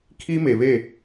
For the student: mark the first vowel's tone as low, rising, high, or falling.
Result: high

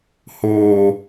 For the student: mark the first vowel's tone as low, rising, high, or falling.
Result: high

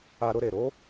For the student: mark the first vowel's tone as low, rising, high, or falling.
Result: high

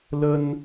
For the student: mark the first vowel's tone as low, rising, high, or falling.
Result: high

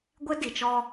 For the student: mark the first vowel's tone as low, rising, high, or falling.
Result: high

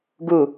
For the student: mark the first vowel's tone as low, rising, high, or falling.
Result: falling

